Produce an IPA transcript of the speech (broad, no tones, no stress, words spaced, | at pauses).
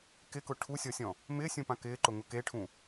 kɪkʊ ʈʰusʲɔsʲɔ̃ | mɪːsʲũpã kɪːǃʊŋʊ keʈʰũ